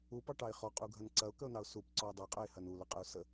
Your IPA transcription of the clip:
u p ɑ ʈ ɑ ɪ̯ χ ɔ qʼ u ɡʱ ɐ n ǀ ɐ ʊ̯ k ə ʊ̯ n ɑ ʊ̯ s u p ǀ ɔ ʊ̯ dˤ ɐ qʼ ɐ ɪ̯ h ɐ n u l ə qʼ ə ʊ̯ s ə

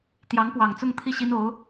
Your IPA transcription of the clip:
t̪ j ɑ˧˥ ŋ p w ɑ˨˩ ŋ t͡s ʊ˥˧ ŋ t̪ʰ i˥˩ ɕ i˥ n o˧˥ ʊ̯

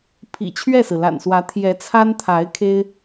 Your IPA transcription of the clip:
pʰ ḭ˨˩ t͡ɕʰ ɥ ɛ˥˩ s ɹ̩˩ l a̰˨˩ n s w ä˧˥ t̪ʰ j ɛ˧˥ t͡sʰ a˥ n t̪ʰ a˧˥ ɪ̯ kʰ e˥ ɪ̯

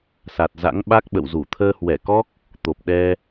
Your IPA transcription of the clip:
s a˨˩ t̚ z a̰˧˥ ŋ ɓ a˦˥ k̚ ɓ ə̰˧˨ w z u˧˩ t̪ʰ əː˧ h w ɛ˧˩ k ɔ˦˥ k̚ | t̪ o˨˩ p̚ ɗ ɛ˧

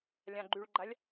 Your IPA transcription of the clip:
lʲ ã ɡ͡ǃ y ɭ ɡ͡ǃ a lʲ

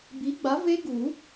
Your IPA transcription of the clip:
b i˨˥ ɡ͡b a˨˥ v e˦˥ ɡ u˨˩˦

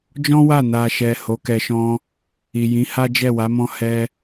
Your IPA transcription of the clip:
d͡ʒ ɔ̃˦ w a˦˨ n a˨ ʃ ɛ˨ h o˨˦ k ɛ˧ ʃ ɔ̃˦ | i˨ j ĩ˨˦ h a˦ d͡ʒ ɛ˦˨ w a˨˦ m ɔ̃˦ h ɛ˦

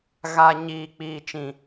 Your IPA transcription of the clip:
ɣ a˨ ɲ iː˨ k͡p iː˨ t͡ʃ ĩ˨

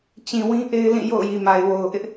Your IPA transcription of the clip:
t͡ɕ ĩ˨ w ĩ˦ ʔ e˦ ɪ̯ l ĩ˦˨ j o̰˦˨ ʊ̯ j i˨ m a˨ ɪ̯ w o˨ ʊ̯ ʔ ɪ˦ ʔ

